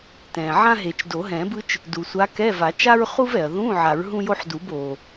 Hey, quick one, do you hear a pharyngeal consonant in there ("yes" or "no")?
yes